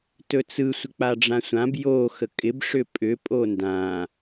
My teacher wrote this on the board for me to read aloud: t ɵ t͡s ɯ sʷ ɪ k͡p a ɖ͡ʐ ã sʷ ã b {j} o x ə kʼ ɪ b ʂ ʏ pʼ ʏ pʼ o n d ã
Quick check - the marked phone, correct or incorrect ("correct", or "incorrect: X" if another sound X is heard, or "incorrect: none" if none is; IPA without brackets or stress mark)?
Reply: correct